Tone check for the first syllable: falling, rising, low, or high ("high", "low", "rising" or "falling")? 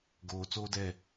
low